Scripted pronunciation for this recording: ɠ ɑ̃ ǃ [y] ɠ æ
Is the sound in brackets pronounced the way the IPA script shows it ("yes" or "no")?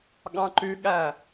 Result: yes